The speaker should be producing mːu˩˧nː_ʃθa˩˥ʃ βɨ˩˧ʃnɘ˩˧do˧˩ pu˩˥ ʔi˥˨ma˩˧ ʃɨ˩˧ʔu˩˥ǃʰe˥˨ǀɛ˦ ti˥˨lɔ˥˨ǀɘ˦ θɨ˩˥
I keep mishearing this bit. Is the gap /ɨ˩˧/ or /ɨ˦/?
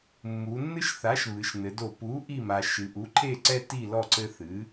ɨ˦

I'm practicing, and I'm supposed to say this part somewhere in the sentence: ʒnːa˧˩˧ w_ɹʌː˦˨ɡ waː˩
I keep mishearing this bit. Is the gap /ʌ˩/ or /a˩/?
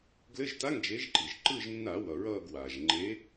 ʌ˩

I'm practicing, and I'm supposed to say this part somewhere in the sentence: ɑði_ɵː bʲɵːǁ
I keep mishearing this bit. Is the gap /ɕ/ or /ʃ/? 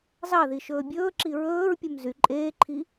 ʃ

